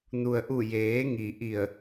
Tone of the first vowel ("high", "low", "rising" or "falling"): low